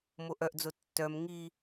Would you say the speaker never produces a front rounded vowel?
no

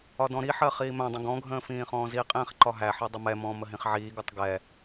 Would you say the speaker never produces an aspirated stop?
yes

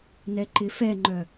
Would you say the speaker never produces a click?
no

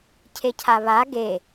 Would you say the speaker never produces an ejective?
yes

